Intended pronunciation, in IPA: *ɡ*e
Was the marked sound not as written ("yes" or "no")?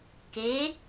yes